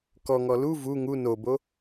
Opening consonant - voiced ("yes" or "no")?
no